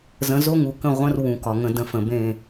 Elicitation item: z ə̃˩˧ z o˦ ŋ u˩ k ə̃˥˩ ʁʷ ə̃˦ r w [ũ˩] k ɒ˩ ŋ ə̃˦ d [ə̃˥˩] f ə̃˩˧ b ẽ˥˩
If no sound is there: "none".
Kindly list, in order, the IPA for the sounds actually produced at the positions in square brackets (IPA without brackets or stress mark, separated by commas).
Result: ũ˩, ə̃˦